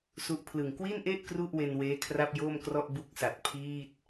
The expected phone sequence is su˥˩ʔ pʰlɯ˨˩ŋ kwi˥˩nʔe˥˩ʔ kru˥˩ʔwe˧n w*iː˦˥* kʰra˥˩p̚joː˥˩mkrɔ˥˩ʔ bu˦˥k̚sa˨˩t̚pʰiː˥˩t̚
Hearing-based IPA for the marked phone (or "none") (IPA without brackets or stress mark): eː˦˥